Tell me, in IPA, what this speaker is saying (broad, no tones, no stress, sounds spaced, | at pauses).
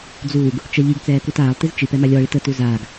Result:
d͡z uː ɡ | t͡ʃ ɜ ʎ i ɡ t͡s ɛː k u t aː lˠ t i z t͡ʃ i p ɛ m a lʲ ɔ ɭ i t ə t u z aː ɡ